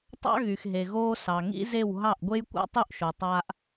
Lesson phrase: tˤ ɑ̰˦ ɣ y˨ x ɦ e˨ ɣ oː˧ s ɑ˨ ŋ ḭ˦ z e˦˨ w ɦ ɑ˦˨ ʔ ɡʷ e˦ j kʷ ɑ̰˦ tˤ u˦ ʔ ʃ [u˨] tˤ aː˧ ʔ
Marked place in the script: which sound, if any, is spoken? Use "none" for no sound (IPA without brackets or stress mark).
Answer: o˨